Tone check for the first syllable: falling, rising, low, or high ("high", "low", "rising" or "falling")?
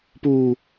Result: low